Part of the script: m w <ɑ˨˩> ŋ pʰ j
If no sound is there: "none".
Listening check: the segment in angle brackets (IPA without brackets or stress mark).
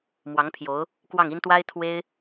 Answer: ɑ˧˥